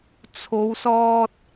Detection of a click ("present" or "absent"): absent